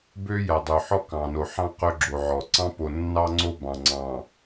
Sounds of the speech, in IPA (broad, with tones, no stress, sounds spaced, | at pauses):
b ø˦ j æ˨ dˤ ø˨ ħ ɔ˦ k ɑ̃˨ n o˨ ħ ɑ̃˦ q ɵ˦ ɡ͡ǁ o˨ ʕ ɔ˨ ǀ ɑ̃˦ p o˨ nː ɑ˦ ŋ͡ǀ o˦ b ɑ̃˨ ŋ͡ǀ ɑ̃˨